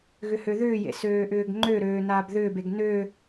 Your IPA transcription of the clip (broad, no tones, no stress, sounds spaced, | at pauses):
ɣ ʏ h ø ð ʏː j ḛ s øː ʔ ʏː ɡ ŋ͡ǃ ø ɾ øː n aː b ð ʏː b e ɡ n ø